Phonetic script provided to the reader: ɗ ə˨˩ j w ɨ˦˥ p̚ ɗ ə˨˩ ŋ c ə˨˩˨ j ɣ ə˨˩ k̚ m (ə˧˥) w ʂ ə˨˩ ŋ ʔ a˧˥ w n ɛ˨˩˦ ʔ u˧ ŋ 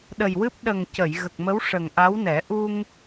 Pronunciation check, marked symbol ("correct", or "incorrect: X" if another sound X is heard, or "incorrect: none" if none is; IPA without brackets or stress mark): correct